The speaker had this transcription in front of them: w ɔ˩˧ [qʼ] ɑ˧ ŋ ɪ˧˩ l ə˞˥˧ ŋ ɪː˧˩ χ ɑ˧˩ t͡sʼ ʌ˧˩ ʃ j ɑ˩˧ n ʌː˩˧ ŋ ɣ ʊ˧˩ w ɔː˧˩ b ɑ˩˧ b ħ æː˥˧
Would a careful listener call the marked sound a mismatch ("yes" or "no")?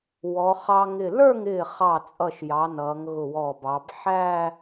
yes